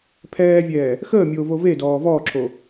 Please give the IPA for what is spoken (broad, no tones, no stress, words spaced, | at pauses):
pʰɛːvʲɛː | xəːmʲoːvo vedɔː vɔːǁʰo